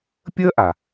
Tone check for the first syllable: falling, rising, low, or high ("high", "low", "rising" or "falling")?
high